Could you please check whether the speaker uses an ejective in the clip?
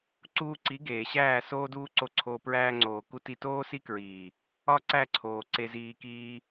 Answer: no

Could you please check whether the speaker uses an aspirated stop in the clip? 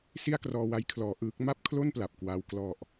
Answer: yes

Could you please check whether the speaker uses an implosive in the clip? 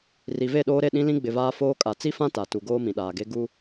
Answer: yes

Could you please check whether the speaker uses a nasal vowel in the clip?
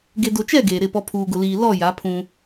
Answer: yes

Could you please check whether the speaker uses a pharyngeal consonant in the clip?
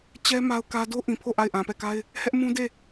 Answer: no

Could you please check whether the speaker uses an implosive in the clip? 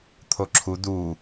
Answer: no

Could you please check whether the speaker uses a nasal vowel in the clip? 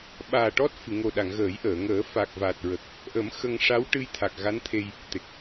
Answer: no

